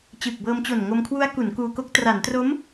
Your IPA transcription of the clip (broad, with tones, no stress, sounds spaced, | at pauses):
t͡ɕ ɯː˨˩ k̚ b ɤː˧ m t͡ɕ o˨˩ n ŋ o˧ m kʰ w u˦˥ a̯ k u˩˦ n k uː˧ k o˦˥ k̚ t r a˩˦ n t r o˦˥ m